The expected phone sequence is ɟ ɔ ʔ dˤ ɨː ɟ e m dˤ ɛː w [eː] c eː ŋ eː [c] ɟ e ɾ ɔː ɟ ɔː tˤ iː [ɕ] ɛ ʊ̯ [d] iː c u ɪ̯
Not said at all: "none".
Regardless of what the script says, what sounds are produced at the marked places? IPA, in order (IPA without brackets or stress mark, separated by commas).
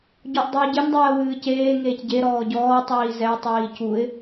ɨː, c, z, tˤ